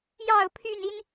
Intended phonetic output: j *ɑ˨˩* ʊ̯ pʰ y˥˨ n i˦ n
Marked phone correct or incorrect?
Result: incorrect